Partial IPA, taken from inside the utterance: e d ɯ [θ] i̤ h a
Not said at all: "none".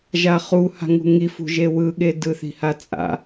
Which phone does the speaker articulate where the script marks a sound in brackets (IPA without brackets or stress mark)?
θ